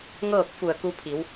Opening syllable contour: falling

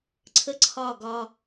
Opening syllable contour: high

